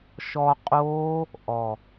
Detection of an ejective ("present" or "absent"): present